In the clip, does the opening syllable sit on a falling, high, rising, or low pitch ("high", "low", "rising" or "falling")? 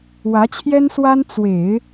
rising